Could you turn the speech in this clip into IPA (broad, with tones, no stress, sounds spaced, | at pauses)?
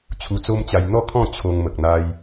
t͡ɕʰ u˧ t͡s o˦ m t͡ɕ a˧ j n̪ ɔ˥˧ kʰ ɔ̃˥˧ t͡ɕʰ o˧ ŋ m ə˨ k̚ n̪ a˧ j